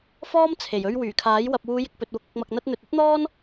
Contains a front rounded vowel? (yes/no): yes